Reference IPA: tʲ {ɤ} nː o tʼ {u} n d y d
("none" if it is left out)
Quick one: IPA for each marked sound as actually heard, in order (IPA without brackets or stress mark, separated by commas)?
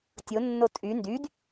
o, y